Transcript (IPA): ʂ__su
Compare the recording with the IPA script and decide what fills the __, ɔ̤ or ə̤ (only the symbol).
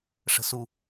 ə̤